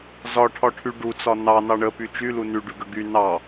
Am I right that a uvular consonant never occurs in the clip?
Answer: yes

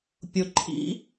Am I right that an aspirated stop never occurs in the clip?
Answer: no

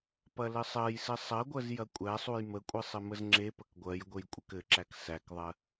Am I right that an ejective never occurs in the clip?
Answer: no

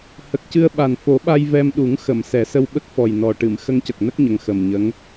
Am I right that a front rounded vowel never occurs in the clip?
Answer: yes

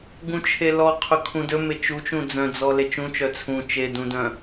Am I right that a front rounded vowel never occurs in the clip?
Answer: no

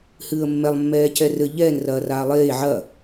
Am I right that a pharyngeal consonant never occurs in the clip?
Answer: no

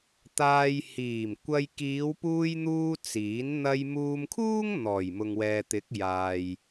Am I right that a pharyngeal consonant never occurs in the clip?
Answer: yes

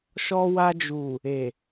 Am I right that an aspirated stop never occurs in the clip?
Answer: yes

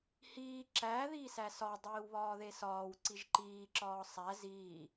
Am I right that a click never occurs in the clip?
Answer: no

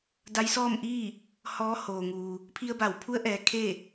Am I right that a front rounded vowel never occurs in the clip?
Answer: yes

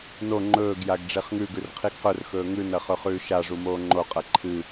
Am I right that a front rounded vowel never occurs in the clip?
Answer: yes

